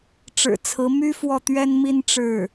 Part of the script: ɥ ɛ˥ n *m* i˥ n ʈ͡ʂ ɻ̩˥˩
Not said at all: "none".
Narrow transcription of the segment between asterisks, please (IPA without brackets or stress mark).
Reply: m